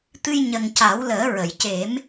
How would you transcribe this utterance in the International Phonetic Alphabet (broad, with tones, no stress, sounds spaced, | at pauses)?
t̪ ɨ˧ j ɲ ə˨˩ ŋ c a˨˩˦ w l əː˨˩˦ ɹ ə˨˩˨ j c e˨˩˦ m